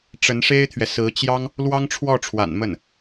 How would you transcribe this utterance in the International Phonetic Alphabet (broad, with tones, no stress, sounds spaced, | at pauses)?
ʈ͡ʂ ə˧˥ n ʂ e˥ ɪ̯ t̪ʰ ɥ ɛ˨ s ɹ̩˧˥ t͡ɕ j ɑ˥ ŋ | l w ɑ˥ ŋ ʈ͡ʂʰ w ɔ˥˩ ʈ͡ʂʰ w a̰˨˩ n m ə˥˩ n